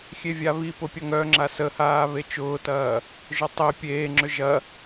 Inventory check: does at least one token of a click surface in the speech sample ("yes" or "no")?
yes